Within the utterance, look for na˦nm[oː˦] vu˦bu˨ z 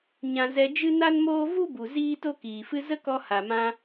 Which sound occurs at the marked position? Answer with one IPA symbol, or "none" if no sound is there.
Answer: oː˦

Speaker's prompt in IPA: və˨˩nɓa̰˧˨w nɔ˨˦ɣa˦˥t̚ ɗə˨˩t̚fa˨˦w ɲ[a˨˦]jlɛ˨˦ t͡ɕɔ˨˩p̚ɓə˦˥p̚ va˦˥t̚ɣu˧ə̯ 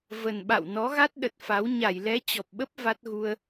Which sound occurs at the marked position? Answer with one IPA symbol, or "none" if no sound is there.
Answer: a˧˩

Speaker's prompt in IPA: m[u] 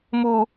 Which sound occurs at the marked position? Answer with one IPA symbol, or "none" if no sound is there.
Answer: u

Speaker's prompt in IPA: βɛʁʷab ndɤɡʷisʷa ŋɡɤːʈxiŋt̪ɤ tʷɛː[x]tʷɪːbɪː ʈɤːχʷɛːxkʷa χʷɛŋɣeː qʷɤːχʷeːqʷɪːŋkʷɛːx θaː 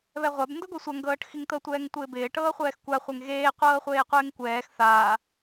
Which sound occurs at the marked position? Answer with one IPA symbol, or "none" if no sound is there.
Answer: ŋ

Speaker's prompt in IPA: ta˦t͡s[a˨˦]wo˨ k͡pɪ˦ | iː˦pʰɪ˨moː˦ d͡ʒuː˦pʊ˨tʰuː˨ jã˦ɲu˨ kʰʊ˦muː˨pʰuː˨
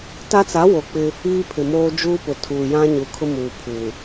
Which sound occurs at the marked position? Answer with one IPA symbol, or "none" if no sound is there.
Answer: a˨˦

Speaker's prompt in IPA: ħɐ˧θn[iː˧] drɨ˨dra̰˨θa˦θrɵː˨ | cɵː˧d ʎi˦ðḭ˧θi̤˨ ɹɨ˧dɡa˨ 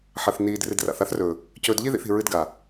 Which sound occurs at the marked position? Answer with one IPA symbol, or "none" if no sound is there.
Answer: iː˧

